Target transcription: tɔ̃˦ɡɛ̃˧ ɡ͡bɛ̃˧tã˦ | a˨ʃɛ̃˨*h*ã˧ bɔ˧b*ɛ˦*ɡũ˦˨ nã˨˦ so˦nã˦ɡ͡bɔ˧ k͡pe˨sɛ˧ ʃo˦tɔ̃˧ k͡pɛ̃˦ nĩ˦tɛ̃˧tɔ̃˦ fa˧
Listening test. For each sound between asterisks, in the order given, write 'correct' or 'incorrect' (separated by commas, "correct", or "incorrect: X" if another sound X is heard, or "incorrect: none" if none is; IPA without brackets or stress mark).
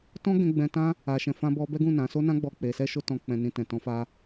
incorrect: f, correct